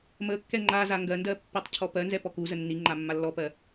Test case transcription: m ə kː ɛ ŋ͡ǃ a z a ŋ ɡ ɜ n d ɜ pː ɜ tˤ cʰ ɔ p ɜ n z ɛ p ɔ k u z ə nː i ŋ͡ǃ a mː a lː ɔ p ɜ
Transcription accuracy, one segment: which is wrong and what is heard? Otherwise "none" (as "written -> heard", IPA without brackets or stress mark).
none